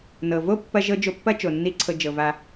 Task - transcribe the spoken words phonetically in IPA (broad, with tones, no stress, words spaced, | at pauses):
nɤ˨vo˦ pːɐ˧ʒɤ˧ d͡ʒo˧pːɐ˦ t͡ʃo˨nːi˦ ǀʰɤ˧d͡ʒɤ˨va˧